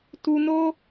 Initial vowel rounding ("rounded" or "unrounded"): rounded